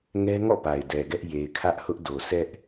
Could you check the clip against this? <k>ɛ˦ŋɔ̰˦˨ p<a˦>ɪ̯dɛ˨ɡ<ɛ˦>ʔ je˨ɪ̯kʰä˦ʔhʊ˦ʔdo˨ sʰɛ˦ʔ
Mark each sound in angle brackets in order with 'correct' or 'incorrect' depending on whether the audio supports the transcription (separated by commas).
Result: incorrect, incorrect, correct